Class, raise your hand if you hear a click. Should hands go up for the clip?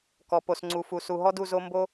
yes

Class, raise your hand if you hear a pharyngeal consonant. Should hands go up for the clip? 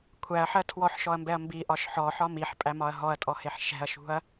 yes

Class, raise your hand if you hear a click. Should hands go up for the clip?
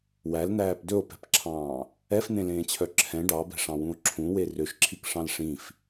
yes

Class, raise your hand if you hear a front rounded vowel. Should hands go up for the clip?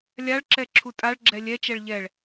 no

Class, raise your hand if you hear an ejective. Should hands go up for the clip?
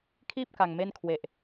no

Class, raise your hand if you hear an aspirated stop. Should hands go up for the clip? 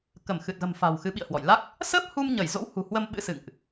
no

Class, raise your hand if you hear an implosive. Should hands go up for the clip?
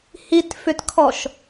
no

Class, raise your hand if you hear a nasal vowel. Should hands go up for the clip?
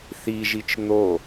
no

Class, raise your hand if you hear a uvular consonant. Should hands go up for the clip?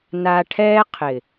yes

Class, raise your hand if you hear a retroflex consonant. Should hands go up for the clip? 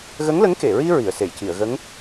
no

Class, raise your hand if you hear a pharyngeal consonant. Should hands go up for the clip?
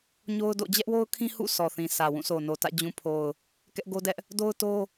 no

